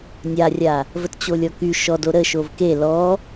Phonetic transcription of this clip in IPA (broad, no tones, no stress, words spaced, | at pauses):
nʲarʲa | vətt͡ɕolʲɔky ʃɔdo ɾəʃov ke lɔ